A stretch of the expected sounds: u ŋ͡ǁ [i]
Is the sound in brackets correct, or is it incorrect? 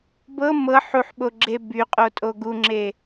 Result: incorrect